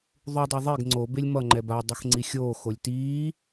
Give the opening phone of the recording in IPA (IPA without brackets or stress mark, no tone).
ðˤ